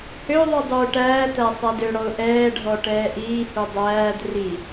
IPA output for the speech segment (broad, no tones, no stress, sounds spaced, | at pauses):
h ø ðˤ u dˤ uː ʈ æː t æ sˤ æ d ø ɽ ɔ ʊ̯ ʔ ɛː ɖʱ ɔ ʈ ɛː ʔ iː h u dˤ æː d r i